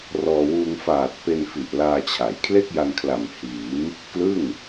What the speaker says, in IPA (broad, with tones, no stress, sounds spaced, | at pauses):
r ɔː˧ w uː˧ ŋ f aː˨˩ t̚ p e˧ n f i˨˩ ʔ l aː˧ t͡ɕʰ a˩˦ j kʰ l e˥˩ k̚ j a˧ n kʰ l a˨˩ m h iː˩˦ m | k l ɯ˥˩ ŋ